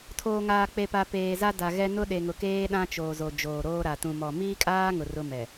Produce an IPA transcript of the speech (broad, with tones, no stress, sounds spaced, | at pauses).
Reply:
tʰ oː˨ ŋ aː˨ k͡p e˨ p a˨ p eː˨ z a˦ d a˨ ɣ ɛ˦ n ʊ˦ ɗ e˨ ŋ ʊ˨ k eː˦ ɗ ã˦ t͡ʃ oː˨ z o˨ d͡ʒ oː˨ ɾ oː˦ ɾ a˨ t ũ˨ m ɔ˨ m iː˦ kʼ aː˦ ŋ ʊ˨ r ʊ˦ m ɛ˨